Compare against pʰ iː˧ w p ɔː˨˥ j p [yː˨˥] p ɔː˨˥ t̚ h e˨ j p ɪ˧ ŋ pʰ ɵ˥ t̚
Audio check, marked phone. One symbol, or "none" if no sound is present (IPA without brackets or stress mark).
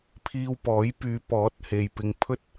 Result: yː˨˧